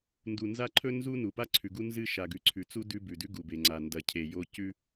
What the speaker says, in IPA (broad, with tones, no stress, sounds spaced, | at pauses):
n d u˨ n z a˦ ǃʰ ɵ˦ n z u˦ n u˨ p a˦ ǀʰ ʉ˨ ɡ u˦ n z ɨ˦ ʃ a˨ ɡ ʉ˨˦ ǀʰ ʉ˨ t͡s u˦ d ʉ˦ b ʉ˨ d ʉ˦ ɡ u˨ b e˨ ŋ͡ǀ a˨ n d ɐ˨ cʰ e˨ j o˦ c ʉ˦